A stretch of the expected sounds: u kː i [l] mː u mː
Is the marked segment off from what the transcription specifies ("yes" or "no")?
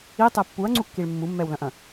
yes